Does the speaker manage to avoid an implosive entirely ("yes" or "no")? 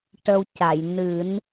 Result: yes